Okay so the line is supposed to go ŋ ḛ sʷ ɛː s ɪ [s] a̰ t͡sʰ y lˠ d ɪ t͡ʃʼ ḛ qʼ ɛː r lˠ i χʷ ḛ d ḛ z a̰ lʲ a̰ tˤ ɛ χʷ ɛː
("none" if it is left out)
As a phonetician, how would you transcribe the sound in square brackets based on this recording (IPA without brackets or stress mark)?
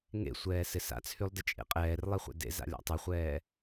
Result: s